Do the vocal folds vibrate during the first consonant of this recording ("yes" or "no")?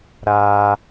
yes